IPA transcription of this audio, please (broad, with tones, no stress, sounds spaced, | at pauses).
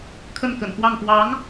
kʰ ə˥˩ n k ə̰˨˩ n x w ɑ˥˩ ŋ p w ɑ˧˥ ŋ